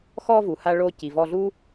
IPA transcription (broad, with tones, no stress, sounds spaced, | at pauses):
x ɔ˧ v u˩ h a˧ ɭ o˧ c i˩ v ɔ˧ ɮ u˥